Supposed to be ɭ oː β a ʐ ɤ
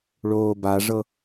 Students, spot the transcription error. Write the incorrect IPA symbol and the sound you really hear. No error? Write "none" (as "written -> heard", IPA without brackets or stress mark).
β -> b